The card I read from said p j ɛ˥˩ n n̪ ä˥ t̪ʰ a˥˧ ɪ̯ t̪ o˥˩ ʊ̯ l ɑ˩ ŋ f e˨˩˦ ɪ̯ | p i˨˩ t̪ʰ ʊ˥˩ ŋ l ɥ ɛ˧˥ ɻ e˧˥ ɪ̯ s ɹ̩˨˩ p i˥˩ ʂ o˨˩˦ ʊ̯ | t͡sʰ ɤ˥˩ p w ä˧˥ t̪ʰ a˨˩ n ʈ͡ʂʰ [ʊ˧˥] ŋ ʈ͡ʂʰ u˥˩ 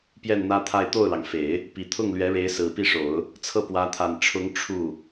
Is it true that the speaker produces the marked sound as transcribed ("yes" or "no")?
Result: yes